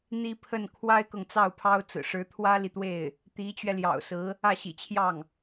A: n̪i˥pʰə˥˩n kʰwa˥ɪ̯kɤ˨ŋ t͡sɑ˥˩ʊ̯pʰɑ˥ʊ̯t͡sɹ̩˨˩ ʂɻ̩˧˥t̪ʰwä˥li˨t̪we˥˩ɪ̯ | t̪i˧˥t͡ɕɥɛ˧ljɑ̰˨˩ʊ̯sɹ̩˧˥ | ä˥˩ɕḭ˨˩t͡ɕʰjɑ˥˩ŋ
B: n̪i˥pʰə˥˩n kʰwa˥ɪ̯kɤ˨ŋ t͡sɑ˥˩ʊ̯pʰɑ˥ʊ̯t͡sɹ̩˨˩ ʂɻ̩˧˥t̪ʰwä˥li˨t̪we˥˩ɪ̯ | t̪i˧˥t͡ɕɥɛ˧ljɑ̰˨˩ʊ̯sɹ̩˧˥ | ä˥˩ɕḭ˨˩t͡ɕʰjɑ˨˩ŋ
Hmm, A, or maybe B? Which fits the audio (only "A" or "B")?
A